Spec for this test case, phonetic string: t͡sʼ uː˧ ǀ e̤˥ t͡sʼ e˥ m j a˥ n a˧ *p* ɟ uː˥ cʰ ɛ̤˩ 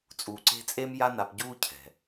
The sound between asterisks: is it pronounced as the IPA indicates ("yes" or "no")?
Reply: yes